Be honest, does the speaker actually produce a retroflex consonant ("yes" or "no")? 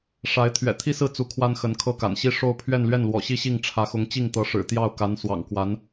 yes